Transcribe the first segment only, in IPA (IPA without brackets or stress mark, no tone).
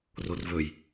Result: r